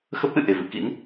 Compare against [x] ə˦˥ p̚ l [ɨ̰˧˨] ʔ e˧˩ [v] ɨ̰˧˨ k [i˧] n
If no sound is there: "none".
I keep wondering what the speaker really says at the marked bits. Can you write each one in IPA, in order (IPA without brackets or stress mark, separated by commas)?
x, ɨ̰˧˨, v, ḭ˧˥